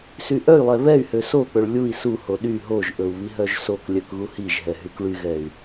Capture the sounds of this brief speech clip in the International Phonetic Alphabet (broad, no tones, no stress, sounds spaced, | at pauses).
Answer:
s y ʔ œ y̯ lˠ ɛ β ɛ y̯ h ø s o k͡p ɵ ɭ lʲ u i̯ s u h o ɗ y ɦ o ʒ ʔ ɵ u̯ β i ɦ œ ʒ s o k lʲ œ k ɣ u h i ʒ ɦ ɛ ɦ y k ɭ y ɣ ɛ y̯